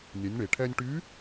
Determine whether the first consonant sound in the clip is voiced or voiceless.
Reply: voiced